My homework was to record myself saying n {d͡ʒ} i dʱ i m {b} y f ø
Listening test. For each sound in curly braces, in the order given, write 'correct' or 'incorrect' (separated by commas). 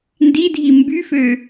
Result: incorrect, correct